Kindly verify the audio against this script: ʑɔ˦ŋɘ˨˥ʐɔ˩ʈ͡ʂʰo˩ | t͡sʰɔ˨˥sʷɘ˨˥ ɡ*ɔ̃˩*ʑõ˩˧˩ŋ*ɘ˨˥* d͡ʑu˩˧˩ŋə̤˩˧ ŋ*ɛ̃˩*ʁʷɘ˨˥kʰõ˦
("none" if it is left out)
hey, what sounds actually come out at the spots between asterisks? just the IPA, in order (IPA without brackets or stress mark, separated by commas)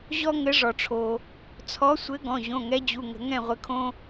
ɔ̃˩˧˩, ɛ˨˥, ɛ̃˥˩